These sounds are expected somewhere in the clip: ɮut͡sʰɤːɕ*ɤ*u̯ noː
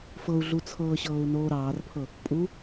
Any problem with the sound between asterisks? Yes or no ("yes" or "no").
yes